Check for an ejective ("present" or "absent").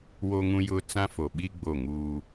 absent